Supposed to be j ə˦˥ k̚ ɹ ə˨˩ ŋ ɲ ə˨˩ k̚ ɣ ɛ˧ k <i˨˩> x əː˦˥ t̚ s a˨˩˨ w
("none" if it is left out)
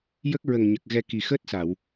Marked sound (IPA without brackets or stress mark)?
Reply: i˨˩